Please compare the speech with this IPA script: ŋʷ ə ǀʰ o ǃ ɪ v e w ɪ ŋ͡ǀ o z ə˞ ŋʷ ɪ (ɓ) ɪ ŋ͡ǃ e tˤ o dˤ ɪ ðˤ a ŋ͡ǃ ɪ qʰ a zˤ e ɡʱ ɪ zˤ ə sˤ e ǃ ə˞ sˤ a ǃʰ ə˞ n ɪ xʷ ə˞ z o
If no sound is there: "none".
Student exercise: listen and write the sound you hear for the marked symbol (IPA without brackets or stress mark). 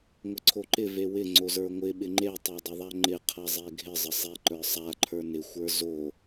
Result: ɓ